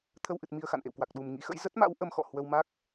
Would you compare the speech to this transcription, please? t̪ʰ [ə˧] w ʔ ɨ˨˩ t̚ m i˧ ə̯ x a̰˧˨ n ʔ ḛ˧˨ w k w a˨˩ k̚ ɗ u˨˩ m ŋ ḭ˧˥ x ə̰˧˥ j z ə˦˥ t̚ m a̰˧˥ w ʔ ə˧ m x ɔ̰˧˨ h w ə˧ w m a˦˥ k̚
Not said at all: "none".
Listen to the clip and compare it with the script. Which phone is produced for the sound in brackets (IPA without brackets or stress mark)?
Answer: ə˧